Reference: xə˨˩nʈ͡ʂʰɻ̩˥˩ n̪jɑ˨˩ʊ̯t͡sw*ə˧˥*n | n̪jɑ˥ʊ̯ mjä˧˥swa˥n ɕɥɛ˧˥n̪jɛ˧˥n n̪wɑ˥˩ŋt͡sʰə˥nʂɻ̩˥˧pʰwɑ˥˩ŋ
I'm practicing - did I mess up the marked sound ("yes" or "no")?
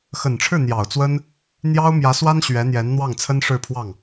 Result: yes